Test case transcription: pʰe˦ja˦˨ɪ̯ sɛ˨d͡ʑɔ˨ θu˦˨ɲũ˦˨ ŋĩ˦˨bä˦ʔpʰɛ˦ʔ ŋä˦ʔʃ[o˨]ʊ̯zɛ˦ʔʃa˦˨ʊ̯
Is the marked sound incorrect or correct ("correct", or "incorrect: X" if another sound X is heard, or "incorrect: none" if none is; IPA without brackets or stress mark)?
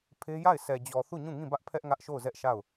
incorrect: o˦˨